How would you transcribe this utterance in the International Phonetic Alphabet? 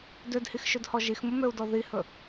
d ø d h i x ʃ ɵ d h ɔ ʒ i x m ʊ m ø u̯ d ɔ ð i h ɵ

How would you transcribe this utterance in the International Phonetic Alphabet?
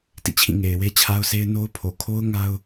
t ḭ˦˨ t͡ɕʰ ĩ˦˨ ŋ e˨ ɪ̯ w e˦ t͡ɕʰ a˦ ʊ̯ sʰ e˦ ɪ̯ n o˦ ʊ̯ pʰ o˨ kʰ o˦ ʊ̯ ŋ a˦ ʊ̯

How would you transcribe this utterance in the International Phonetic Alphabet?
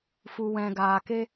f u˨ w ɛ̃˨ ɡ aː˨ k e˧

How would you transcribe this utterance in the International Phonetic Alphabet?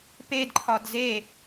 p e d ǃʰ ɒ d z e

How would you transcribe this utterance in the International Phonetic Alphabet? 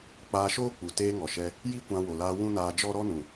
k͡p aː˧ ʃ oː˦ k͡p u˨ t eː˧ ŋ ɔ˨ ʃ ɛ˧ | j i˦ kʷ ã˧ w o˨ l aː˧ w ũ˦ n aː˧ d͡ʒ ɔ˦ ɾ ɔ˦ n ũ˨

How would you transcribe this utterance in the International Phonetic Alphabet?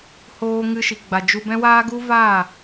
h oː˧ ŋ ɨ˧ ʃ i˨ ɡ͡b a˨ d͡ʒ u˧ b ɛ̃˦ w aː˦ ɡ u˦ v a˦˨

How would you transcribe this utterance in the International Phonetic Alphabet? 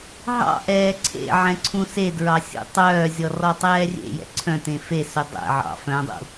ɦ ɑ̰ ʔ ɛː ǀʰ ḛ ʕ ɛ̃ ǀʰ ũ s e d ɹ ɑ sʲ ṵ tˤ œː zʲ ɔ r ɔ tˤ ɛː rʲ ḛ j ɛ̰ ǀʰ œ̃ t ẽ f e s ɵ dˤ ɛ̰ ʕ ɑ̰ f œ̃ dˤ ṵ

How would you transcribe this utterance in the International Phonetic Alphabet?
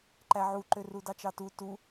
ǃ æ ʕ u ǃ ø r u d ɑ t͡ʃ ɑ t u t u

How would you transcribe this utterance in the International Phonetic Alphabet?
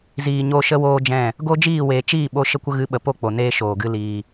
z iː˨ ɲ o˧ ʃ ə˦ w oː˦ d͡ʒ ɛ̃˦˨ | ɡ o˦ d͡ʒ iː˦˨ w eː˨ t͡ʃ iː˦˨ ɓ o˧ ʃ ə˧ kʷ ə˧ ɣ ɨ˨˦ ɓ ə˨ p o˦˨ k͡p o˨ n eː˧ ʃ oː˨ ɡ ɨ˧ l iː˨

